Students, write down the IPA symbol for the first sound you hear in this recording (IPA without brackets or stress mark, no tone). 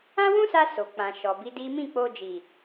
ã